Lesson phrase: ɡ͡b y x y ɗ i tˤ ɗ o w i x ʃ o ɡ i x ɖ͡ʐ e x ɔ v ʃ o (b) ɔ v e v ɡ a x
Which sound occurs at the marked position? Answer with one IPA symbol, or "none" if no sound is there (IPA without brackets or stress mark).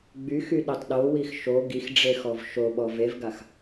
ɓ